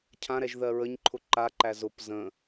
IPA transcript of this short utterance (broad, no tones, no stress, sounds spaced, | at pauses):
cʰ ã ɾ ɛ ʒ ð ɜ ɹ ə ɲ ǃʰ ʊ ǃ a ǃ æ z ʊ p z ə̃